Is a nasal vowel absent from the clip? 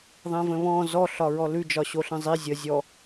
no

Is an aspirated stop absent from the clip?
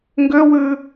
yes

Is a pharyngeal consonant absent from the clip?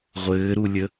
yes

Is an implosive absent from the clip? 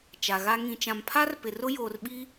no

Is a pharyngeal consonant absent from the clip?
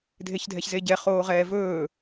yes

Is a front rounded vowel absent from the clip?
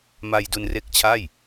yes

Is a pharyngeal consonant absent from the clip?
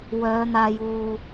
yes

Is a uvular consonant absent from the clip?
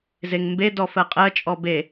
no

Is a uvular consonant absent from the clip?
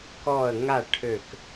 yes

